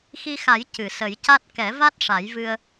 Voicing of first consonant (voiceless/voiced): voiceless